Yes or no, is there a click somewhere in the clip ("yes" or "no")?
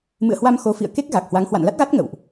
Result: no